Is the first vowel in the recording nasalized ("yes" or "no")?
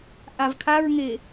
no